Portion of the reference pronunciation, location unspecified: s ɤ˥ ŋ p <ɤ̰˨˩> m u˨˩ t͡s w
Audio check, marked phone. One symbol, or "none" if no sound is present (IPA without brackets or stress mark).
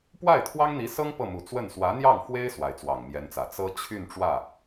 ɤ˥˩